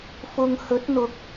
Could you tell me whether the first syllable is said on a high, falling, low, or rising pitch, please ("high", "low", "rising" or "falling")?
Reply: low